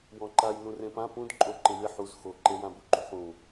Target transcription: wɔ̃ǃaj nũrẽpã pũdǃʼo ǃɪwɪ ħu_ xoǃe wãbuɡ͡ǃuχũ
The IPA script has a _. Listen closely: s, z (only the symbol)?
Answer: z